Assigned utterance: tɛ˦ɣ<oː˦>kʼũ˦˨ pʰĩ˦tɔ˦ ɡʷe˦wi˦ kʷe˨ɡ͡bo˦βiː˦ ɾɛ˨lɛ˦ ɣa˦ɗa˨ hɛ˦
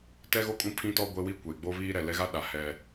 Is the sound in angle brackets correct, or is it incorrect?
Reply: incorrect